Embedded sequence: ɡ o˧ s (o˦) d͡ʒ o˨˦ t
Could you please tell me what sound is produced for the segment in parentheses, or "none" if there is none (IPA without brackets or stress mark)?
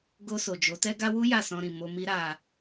o˨